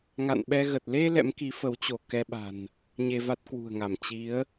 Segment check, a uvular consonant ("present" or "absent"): absent